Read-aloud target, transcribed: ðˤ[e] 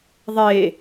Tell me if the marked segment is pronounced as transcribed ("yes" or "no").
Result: yes